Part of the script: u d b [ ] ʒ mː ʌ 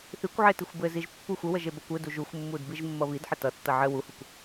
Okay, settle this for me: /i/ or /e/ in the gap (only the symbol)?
i